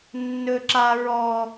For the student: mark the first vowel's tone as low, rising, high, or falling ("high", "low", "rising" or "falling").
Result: high